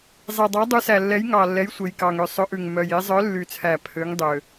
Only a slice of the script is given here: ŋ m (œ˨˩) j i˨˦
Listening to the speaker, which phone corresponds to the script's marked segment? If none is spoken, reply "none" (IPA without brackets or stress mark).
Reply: œ˨˩